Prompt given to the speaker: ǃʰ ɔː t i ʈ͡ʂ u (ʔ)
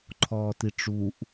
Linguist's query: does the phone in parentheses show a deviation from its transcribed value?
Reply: no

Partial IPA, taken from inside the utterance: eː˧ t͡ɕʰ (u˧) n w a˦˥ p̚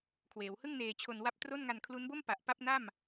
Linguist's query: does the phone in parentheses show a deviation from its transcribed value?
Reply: yes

